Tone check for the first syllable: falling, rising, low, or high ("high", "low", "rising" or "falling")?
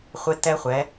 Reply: high